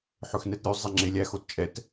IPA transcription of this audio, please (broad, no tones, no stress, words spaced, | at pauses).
ħɵxnɛtɾʲʉ zˤɛŋ͡ǁelʲæ xott͡ʃʼɛt